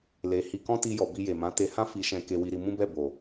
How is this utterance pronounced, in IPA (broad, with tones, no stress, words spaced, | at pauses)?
le˧ hi˧kɔ̃˦ ti˦jɔ˧ bi˧je˨mã˨˦ te˧hã˦ fi˧ʃɛ̃˧ ke˧wi˧ɾi˧ mũ˦bɛ˦˨ bo˨